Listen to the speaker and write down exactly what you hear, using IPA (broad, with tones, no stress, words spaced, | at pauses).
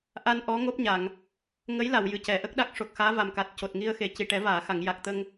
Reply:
ʔa˧nʔɔ˧˥ ŋo˦˥p̚ɲa˨˩˨ŋ | ŋə˧˥jla˨˩˨w jɨ˨˩cɛ˨˩˨ʔə˦˥k̚ɗa˦˥k̚ ʂo˨˩k̚xaː˧˥va˨˩mka˨˩t̚ co˨˩t̚ŋi˧ə̯xe˨˩ ci˨˩ʈɛ˨˩˦vaː˨˩˨xa˨˩˨ŋ ja˨˩k̚t̪ə˧ŋ